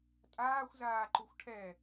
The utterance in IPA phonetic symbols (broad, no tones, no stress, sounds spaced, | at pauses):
tʼ aː xʷ z aː ǃ u xʷ ʈʰ ɛ